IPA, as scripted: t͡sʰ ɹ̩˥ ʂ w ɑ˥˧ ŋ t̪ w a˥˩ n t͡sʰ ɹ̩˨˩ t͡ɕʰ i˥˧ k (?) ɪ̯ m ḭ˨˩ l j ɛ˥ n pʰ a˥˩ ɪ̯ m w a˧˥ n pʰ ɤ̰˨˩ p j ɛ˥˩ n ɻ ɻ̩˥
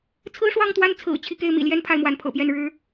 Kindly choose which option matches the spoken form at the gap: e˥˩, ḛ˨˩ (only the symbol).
e˥˩